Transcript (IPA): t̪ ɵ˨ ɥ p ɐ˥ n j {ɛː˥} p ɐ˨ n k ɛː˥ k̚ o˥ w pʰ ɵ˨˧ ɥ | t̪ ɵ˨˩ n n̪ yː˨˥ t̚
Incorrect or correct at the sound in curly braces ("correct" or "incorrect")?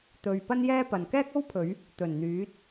correct